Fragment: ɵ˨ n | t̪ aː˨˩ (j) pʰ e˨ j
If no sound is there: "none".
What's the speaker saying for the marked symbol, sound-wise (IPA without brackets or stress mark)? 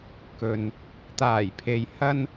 j